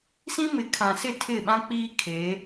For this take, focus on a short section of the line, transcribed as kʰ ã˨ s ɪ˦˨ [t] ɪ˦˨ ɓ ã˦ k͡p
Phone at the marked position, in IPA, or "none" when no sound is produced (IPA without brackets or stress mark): tʰ